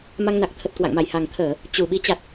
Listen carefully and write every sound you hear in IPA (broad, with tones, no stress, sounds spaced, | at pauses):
m a˧ ŋ n a˨˩ k̚ t̪ʰ ə˨˩ t̚ k w a̰˧˨ ŋ m a˧˩ j h a˨˩ ŋ t̪ʰ əː˧˩˨ | t͡ɕ u˨˩ ɓ i˨˦ t͡ɕ a˨˩ t̚